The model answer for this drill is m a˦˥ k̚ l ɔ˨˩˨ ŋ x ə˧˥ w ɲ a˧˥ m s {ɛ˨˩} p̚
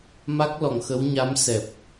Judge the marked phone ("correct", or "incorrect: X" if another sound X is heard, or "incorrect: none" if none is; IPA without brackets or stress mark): correct